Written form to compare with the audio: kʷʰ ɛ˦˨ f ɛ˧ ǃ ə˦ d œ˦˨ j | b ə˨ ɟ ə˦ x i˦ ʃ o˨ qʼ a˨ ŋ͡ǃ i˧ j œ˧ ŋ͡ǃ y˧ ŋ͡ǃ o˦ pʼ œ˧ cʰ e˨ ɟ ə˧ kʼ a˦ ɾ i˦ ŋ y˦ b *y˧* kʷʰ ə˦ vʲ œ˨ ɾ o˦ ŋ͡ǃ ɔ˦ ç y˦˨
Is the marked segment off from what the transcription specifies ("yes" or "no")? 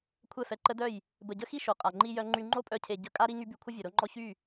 no